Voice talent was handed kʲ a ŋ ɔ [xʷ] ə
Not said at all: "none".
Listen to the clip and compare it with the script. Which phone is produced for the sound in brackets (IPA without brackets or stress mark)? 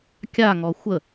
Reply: xʷ